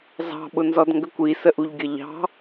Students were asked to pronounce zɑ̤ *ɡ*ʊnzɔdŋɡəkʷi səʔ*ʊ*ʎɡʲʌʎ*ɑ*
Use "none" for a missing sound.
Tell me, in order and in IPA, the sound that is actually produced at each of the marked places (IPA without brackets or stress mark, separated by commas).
ɓ, u, ɑ̤